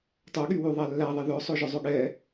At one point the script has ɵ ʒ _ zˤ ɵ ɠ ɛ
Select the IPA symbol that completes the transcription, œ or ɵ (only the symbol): œ